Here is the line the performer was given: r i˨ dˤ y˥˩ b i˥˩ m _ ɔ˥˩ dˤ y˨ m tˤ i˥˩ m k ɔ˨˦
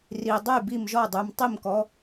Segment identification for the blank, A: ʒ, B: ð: A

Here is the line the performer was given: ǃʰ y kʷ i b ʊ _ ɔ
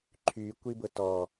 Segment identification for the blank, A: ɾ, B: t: B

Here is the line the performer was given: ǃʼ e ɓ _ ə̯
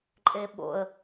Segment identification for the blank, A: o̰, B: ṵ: A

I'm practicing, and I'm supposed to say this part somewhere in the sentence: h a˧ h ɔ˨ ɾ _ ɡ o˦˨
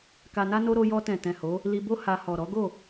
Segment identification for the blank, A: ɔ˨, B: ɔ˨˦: B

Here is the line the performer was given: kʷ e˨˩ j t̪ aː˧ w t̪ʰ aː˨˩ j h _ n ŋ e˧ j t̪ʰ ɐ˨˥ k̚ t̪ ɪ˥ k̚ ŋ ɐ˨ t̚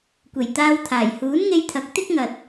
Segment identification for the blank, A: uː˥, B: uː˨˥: B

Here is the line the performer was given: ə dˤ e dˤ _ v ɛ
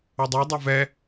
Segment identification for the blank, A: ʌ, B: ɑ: A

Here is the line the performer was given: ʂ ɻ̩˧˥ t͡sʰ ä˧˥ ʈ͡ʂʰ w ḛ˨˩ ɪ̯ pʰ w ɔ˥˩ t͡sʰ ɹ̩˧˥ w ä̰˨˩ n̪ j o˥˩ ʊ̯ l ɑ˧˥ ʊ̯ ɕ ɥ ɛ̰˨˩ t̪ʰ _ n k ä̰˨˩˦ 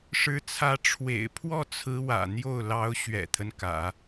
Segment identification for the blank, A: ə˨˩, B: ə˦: B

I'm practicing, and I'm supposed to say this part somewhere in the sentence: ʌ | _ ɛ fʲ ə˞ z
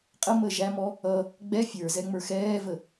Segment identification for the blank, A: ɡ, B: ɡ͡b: B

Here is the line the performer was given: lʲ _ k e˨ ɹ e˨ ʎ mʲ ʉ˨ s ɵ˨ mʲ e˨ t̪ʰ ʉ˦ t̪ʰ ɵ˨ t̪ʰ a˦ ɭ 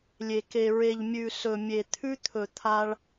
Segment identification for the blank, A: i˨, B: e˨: B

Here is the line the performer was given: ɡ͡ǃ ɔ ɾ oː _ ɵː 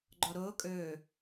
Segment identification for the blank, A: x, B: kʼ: B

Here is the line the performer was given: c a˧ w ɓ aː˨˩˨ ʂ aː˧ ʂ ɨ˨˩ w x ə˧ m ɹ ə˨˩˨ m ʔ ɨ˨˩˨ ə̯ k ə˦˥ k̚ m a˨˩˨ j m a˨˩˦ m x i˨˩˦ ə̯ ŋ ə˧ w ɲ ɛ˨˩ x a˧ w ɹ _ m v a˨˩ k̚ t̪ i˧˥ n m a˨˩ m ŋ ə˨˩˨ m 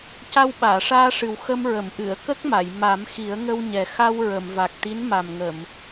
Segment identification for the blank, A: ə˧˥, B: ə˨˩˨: B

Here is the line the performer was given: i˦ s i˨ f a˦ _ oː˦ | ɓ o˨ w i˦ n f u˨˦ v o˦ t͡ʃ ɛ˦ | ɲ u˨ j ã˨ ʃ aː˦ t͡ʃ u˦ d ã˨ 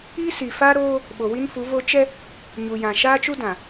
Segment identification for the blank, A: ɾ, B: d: A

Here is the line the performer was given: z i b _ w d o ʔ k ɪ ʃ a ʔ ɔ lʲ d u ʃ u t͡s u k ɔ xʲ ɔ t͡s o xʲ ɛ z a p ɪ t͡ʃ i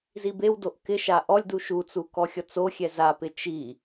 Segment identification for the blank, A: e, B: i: A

